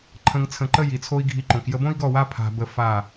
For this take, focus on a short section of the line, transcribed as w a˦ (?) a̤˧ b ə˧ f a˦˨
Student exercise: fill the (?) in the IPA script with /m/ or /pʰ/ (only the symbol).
pʰ